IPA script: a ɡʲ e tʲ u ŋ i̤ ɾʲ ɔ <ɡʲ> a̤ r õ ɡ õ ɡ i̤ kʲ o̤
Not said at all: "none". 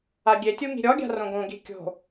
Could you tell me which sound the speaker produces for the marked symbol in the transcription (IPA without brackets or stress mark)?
ɡʲ